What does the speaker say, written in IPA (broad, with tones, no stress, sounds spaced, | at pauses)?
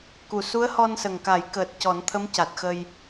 k u˨˩ s u˧˥ ə̯ h ɔ˧ n s ə˨˩ ŋ k a˨˩˦ j k əː˨˩ t̚ c ɔ˨˩˦ n t̪ʰ ə˧˥ m c a˨˩ t̚ x ə˧ j